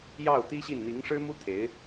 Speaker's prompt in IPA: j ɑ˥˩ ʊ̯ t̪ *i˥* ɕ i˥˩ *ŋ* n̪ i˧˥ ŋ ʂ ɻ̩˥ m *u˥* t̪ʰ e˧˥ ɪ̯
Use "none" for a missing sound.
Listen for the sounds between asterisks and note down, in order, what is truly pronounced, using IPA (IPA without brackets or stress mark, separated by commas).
i˥, n, u˥